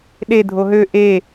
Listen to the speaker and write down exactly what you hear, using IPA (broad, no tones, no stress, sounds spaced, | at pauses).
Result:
ɗ e dʱ o ɦ ø ʔ e